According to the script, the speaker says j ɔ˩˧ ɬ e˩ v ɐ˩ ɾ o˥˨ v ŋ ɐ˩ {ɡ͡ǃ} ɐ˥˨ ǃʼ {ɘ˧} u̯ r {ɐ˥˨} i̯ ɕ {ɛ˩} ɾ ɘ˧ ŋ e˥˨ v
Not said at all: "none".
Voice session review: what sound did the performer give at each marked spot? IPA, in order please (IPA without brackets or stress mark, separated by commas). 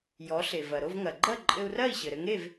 ɡ͡ǃ, ɘ˧, ɐ˥˨, ɘ˩